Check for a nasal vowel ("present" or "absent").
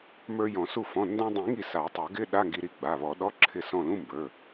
present